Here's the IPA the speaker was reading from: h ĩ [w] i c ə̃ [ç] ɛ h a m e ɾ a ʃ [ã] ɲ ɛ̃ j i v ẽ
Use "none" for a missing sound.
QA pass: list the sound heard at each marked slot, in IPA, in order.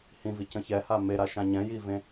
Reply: v, ç, ã

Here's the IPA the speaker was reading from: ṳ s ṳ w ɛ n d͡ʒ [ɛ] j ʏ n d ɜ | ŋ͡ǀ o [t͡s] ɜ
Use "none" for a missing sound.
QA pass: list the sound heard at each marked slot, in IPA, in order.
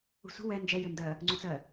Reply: ɛ, t͡s

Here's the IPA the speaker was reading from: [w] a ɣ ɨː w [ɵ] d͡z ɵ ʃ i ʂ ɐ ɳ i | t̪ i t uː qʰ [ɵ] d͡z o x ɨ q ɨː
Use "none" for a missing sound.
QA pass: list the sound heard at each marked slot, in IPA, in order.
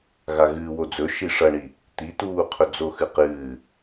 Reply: ɣ, o, ɵ

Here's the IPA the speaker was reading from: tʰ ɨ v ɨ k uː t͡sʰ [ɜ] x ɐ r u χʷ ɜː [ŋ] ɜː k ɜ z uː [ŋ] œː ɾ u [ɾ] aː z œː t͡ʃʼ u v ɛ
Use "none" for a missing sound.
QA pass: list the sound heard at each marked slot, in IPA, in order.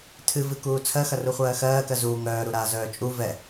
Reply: ɜ, x, ŋ, ɾ

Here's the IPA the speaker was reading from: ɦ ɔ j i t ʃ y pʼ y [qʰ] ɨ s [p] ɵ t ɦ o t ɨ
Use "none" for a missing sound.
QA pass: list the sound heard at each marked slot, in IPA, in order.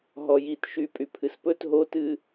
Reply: pʰ, p

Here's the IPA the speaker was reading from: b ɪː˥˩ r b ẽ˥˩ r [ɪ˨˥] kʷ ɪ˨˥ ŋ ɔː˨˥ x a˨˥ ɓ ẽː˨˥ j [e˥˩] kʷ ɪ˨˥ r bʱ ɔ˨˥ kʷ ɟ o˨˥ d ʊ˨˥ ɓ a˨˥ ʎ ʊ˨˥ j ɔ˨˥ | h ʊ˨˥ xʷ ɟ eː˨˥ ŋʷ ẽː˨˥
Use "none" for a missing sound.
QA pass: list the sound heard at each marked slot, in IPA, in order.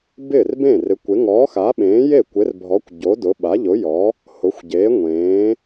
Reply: ɪ˨˥, e˥˩

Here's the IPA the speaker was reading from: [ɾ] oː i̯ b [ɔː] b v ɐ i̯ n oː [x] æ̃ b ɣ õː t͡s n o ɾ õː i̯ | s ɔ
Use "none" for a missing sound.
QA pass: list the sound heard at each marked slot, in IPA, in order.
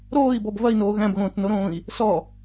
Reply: ɾ, ɔ, ɣ

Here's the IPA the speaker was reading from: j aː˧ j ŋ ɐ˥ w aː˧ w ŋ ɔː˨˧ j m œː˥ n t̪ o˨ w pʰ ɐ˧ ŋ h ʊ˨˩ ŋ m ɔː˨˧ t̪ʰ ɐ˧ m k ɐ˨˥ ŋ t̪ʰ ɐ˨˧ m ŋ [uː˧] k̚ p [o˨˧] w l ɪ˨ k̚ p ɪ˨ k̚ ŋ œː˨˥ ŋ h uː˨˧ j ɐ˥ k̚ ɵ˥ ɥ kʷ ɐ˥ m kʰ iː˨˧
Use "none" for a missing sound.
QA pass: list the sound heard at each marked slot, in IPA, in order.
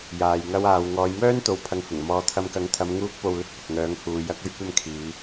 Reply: uː˧, o˨

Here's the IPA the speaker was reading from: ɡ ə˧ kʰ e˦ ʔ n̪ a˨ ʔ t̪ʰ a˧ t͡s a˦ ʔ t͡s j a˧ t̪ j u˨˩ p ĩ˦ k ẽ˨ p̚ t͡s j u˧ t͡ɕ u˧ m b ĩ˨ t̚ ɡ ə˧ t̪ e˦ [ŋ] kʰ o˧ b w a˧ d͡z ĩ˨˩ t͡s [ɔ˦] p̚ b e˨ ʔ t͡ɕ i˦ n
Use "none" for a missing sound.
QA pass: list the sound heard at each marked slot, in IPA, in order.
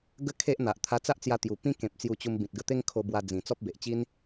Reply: ŋ, ɔ˦

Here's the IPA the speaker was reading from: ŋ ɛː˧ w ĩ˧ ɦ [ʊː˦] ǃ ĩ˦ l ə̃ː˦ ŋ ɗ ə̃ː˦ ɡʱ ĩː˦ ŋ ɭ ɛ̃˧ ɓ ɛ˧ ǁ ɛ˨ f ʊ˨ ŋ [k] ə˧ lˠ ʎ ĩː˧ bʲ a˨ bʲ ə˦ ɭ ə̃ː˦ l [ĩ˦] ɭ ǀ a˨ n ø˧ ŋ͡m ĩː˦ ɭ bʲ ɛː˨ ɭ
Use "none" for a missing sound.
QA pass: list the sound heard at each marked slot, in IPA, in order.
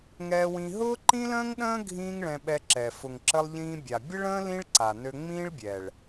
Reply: ʊː˦, ǁ, ĩ˦

